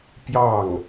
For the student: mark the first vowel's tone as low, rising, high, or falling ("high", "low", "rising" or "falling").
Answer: falling